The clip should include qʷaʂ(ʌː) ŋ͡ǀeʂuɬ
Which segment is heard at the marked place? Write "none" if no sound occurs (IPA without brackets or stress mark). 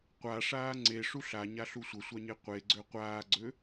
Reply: aː